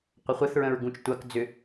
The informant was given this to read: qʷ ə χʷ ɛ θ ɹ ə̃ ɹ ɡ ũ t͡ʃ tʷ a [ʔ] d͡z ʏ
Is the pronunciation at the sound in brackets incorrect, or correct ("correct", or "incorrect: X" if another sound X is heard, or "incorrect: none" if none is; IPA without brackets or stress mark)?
incorrect: k